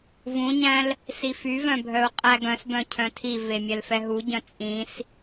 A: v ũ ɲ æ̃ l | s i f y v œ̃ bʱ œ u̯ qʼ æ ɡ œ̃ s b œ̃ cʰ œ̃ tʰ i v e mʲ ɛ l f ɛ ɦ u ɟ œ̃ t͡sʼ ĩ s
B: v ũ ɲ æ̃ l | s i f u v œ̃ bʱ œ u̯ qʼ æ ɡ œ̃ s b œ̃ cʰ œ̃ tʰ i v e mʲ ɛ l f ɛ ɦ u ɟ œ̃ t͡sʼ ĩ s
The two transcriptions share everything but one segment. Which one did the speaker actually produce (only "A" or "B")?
A